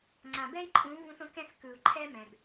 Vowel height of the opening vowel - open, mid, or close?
open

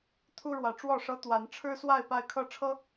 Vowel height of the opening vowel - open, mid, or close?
close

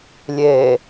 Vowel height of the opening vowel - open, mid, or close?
mid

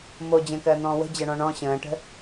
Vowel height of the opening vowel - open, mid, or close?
mid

